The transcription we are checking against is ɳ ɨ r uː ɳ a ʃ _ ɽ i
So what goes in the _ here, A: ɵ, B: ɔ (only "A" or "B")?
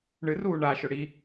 A